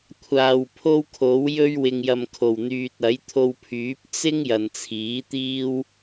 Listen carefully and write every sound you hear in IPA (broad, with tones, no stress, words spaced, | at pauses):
kʷʰaː˨w pʰo˥wkʰo˨˥wjɵ˥ɥ wɪ˨ŋjɐ˨mkʰo˨˩wn̪yː˨t̚ ɐ˨˥jt̪ʰo˧wpʰyː˨˥p̚ t͡sɪ˥ŋ jɐ˨nt͡sʰiː˨˥t̪iː˥w